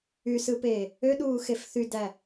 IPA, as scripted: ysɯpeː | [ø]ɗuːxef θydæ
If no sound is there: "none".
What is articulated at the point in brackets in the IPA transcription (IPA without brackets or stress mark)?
ø